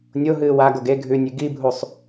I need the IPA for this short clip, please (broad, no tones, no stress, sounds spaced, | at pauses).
nʲ o ɦ ɨː w a ɡ o ɡ e ɡʱ ʉ nʲ ʉ ɡ i bʱ u sˤ